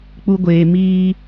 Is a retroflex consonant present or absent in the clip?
absent